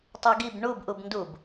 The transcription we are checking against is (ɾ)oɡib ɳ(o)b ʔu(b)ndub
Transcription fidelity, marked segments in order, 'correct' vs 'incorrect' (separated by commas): incorrect, incorrect, correct